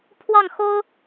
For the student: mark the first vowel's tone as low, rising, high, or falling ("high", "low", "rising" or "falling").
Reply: falling